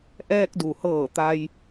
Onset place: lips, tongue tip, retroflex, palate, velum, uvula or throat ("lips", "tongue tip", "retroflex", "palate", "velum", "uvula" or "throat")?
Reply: throat